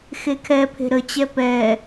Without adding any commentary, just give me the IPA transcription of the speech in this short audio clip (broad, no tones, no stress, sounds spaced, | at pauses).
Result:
x e kʰ ɛ pʰ e̤ ɾ ə t͡ɕ ɛ p ɛ